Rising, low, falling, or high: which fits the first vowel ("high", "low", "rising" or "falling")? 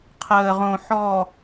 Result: low